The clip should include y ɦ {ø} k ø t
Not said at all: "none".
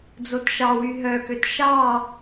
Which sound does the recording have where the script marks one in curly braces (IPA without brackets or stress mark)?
œ